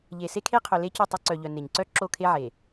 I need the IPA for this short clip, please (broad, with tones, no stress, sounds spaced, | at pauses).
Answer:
ʎ e˨ s e˦ kʰ e˦ qʰ œ˨ l e˦ c u˦˨ tˤ o˦ ǀ œ˨ ʎ œ˨ n e˨ ɲ ǀ œ˦ ǁ o˦˨ kʰ e˦ ʕ e˨